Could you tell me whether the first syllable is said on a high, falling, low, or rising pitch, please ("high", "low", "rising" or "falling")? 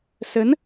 rising